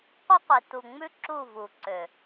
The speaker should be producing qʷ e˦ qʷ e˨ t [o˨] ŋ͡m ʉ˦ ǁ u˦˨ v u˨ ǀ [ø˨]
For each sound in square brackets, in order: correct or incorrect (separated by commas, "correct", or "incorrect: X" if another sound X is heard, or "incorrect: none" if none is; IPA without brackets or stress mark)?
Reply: incorrect: u˨, correct